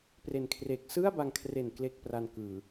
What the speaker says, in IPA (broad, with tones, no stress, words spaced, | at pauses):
pre˨˩nkʰreː˨˩k̚ sɯ˥˩a̯ba˧ŋkʰre˨˩n kle˥˩k̚pra˧nkɯː˨˩